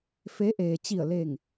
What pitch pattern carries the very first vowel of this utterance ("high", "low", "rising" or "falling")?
rising